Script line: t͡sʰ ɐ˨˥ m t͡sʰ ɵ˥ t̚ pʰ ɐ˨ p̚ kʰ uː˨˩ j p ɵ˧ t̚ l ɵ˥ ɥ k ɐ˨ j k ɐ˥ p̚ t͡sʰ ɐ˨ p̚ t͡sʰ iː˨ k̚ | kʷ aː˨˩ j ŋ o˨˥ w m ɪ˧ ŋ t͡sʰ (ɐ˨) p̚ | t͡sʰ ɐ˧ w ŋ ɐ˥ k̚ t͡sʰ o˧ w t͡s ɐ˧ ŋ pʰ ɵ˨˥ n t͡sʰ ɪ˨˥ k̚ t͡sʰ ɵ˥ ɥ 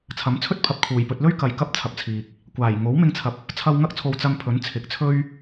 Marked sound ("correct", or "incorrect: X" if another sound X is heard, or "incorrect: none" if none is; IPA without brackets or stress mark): incorrect: ɐ˨˥